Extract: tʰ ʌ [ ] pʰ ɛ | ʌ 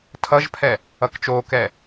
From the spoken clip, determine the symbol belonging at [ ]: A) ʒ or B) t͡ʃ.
A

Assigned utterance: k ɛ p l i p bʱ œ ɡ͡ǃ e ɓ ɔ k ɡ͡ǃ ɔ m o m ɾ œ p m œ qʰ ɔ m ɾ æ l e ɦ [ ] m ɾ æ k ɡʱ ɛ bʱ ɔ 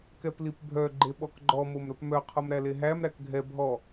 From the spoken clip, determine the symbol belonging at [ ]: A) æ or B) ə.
A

